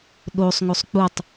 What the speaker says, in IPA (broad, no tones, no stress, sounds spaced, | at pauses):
ɗ o sˤ ŋ o sˤ k͡p u tˤ